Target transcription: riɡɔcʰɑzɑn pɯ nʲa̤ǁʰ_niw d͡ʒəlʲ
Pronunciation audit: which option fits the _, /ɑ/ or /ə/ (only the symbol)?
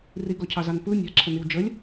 ə